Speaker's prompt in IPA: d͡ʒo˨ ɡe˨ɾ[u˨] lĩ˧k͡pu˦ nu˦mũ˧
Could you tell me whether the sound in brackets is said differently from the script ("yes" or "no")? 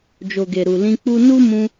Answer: no